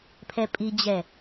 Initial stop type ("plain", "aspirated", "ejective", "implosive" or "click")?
aspirated